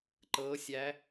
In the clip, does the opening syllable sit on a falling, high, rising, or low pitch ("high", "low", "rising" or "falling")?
rising